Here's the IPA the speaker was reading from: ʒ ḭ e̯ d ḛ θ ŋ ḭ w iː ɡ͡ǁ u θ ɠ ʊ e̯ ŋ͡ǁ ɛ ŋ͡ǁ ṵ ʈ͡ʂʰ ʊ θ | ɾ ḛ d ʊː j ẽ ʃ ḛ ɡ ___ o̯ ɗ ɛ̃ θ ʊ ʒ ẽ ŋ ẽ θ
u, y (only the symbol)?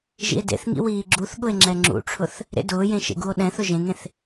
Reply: u